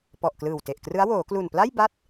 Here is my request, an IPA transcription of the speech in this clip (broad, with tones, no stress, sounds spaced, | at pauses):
p ɔ˨˩ ʔ k l ɯː˨˩ w t e˨˩ ʔ k r ɯ˦˥ a̯ w oː˩˦ k l u˨˩ n p l a˥˩ j b a˦˥ t̚